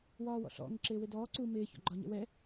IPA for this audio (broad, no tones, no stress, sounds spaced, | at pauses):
w ɒː w ɔ̰ ɬ ɔ̰ ŋ ɪ ǁ ɪː w ɪ d ɔː ǀ u m ɪː ç ɔ̰ ɡ͡ǃ ɒ ɲ ɛ̰ w ɛ